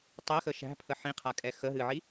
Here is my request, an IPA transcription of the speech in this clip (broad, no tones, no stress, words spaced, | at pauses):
tˤɛxə ʃæ̤pʰə ħĩqʰakʼɛ xəɦɨʕi